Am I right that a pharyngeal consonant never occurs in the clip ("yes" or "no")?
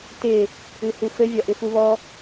yes